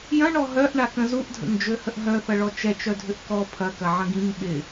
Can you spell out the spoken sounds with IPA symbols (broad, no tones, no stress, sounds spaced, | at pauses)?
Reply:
j ɐ̃ ɳ ɔ ɦ œ ʔ ɳ a k ə̃ z u ʔ dʱ ə̰ ŋ d͡ʒ ø h ə ʔ ɦ œ θ ɐ ɭ ɔ t͡ʃ ɛ t͡ʃ œ dʱ ʏ ʔ k ɔ pʰ ɐ k ɐ ʕ ə̃ ɡ ĩ ŋ ɓ ɪ